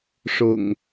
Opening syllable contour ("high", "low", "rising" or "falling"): low